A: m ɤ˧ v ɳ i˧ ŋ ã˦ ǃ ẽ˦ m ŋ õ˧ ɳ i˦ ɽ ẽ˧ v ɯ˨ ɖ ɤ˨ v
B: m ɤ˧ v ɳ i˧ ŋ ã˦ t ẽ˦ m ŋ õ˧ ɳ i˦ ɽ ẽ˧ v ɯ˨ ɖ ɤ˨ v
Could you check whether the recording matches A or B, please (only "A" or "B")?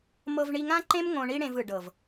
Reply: A